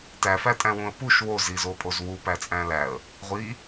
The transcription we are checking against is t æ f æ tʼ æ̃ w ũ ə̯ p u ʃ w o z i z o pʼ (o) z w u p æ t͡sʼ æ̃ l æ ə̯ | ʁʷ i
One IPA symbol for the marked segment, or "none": o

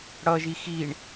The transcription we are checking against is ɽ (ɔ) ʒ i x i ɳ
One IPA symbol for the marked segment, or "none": ʌ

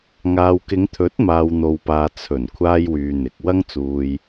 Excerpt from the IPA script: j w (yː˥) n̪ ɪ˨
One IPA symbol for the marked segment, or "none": yː˧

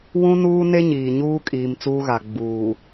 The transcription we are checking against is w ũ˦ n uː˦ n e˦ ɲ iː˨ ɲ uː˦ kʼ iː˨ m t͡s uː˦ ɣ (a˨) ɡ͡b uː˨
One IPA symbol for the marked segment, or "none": a˨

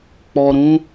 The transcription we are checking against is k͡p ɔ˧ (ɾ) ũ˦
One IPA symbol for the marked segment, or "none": ɾ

